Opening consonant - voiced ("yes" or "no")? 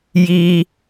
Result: yes